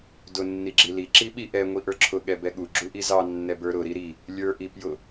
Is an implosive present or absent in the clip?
present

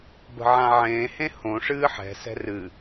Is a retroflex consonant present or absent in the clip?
present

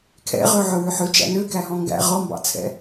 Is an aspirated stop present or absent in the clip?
present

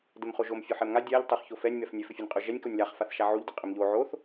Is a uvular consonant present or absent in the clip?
present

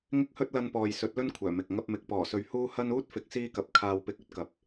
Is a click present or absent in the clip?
absent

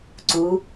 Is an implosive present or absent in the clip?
absent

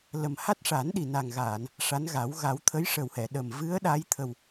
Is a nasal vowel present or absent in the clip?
absent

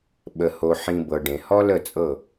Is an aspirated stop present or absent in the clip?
absent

